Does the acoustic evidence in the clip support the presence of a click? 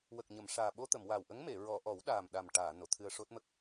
no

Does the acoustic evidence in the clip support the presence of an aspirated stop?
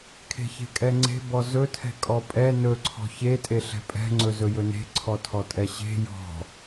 yes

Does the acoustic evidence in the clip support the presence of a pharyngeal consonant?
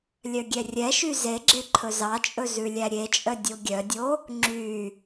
no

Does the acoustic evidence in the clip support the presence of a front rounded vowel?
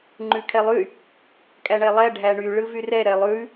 yes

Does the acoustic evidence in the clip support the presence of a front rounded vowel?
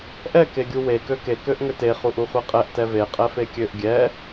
yes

